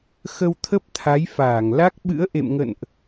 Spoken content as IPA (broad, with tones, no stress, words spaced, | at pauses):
xə˧wt̪ʰə˦˥p̚t̪ʰa˨˦jfaː˧˩ŋ la˦˥k̚ɓɨ̰˧˥ə̯ ʔḛ˧˨mŋə̰˧˨nʔ